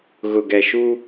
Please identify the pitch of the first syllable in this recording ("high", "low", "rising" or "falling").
low